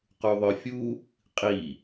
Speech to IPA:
q u ðˤ œ fʲ u | qʼ i

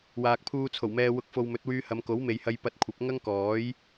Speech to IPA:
w aː˨ k̚ pʰ uː˧ t͡sʰ o˨˩ w m ɛː˨ w ʊ˨˥ k̚ f o˨ w m ɵ˨˥ t̚ w yː˧ h ɐ˨˧ m k o˨˥ w m e˨ j h ɐ˧ j p ɐ˧ t̚ kʷʰ ɐ˨˥ p̚ ŋ ɐ˥ ŋ k ɔː˨˥ j

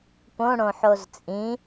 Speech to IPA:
p õ ɽ õ ħ o z t͡sʼ ĩ

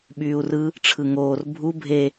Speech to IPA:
ɓ yː u̯ r ɯ | ʈ͡ʂʰ ɯ ŋ oː r bʱ u bʱ e

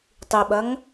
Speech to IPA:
tˤ i ɓ ɐ ŋ

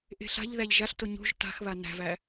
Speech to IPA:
ʔ e̤ ɬ a̤ ʎ ð æ ʎ ʒ a ɬ t o ɲ o̤ ʒ t a̤ x β a n æ̤ v æ

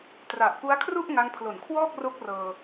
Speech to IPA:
t r a˨˩ ʔ p u˦˥ a̯ kʰ r u˥˩ ʔ ŋ a˧ ŋ pʰ l o˨˩ n kʰ w ɔː˥˩ k̚ r o˦˥ k̚ r ɤː˧

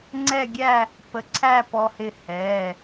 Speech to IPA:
ŋ͡ǀ ɛ˥˧ ɡʲ æ˥˧ | p ə˧ ǀʰ æ˥˧ p ɔ˧ h ɪ˧˩ h ɛː˩˧˩

